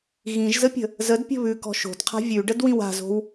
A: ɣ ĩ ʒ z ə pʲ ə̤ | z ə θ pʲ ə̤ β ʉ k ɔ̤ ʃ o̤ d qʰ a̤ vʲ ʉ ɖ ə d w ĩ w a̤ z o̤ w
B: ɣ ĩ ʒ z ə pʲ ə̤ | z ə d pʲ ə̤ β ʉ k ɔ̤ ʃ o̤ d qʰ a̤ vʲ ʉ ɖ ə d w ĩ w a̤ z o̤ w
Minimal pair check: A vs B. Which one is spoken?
B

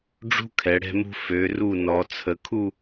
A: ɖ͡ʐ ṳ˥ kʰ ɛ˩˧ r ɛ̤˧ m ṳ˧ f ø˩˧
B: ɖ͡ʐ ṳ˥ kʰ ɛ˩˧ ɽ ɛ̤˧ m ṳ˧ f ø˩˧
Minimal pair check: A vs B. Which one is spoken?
B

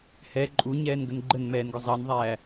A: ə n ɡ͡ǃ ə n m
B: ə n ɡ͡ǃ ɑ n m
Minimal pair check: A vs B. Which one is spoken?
A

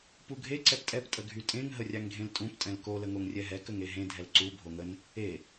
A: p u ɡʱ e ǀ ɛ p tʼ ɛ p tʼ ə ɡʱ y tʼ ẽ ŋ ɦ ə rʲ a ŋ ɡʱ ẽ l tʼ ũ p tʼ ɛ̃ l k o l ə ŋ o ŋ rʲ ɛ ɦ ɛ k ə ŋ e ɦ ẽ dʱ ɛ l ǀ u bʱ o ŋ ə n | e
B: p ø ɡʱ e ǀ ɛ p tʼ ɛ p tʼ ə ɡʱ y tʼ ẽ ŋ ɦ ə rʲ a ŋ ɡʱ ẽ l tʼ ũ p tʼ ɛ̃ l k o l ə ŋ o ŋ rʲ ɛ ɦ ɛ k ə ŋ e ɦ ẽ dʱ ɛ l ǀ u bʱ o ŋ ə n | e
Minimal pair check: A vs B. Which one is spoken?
A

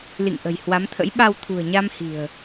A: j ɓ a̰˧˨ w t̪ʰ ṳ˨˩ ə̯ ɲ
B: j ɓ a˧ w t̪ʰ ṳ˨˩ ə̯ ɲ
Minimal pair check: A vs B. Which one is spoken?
B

